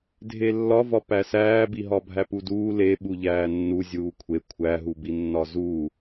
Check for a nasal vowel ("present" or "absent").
absent